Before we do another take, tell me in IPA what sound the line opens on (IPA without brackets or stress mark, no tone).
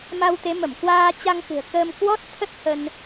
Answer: m